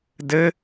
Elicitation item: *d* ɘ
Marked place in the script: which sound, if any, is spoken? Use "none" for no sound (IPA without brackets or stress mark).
d